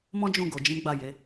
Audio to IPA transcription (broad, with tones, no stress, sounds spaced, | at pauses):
m ɔ̃˦ d͡ʒ ũ˦˨ ɡ o˨ d͡ʒ ĩ˨˦ ɡ͡b a˦˨ j e˨˦